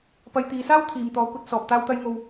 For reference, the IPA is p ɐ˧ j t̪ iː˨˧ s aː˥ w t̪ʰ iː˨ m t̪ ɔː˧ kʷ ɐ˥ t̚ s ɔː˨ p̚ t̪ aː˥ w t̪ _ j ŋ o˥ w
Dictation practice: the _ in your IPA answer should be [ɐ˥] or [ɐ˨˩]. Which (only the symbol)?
ɐ˥